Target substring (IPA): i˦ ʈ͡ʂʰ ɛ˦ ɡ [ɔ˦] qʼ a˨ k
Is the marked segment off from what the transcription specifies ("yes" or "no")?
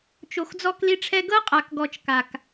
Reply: yes